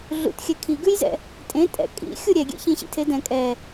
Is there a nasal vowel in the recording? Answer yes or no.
yes